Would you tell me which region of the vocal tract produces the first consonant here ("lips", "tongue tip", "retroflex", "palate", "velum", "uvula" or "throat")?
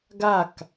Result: velum